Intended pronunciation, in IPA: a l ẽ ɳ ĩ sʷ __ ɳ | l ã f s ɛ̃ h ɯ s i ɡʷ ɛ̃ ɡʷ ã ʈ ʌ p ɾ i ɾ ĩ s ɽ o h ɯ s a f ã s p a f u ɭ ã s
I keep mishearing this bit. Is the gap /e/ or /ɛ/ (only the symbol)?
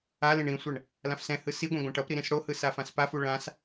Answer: ɛ